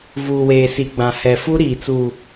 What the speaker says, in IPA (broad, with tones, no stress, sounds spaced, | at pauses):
v uː˨ w eː˨ s i˨ ɡ͡b ã˨ h ɛ˨ f u˦ ɾ iː˨ t͡s u˨